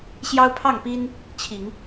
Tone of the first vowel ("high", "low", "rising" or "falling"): high